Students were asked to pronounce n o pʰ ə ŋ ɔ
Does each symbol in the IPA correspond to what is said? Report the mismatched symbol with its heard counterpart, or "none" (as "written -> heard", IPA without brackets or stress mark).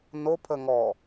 none